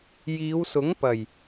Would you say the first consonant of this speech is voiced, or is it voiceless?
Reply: voiced